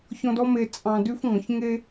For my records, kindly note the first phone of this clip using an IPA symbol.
ç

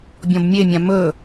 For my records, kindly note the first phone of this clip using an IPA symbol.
bʲ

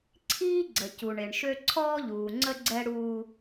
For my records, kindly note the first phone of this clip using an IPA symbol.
ǀʰ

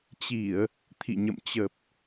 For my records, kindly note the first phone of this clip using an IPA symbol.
t͡ɕ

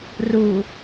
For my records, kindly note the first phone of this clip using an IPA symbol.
r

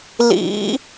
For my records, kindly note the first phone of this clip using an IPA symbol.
l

